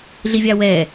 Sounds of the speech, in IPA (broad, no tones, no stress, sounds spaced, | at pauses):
ɮ i vʲ a w ɛ